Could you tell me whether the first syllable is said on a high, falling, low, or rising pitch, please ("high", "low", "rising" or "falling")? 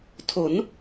rising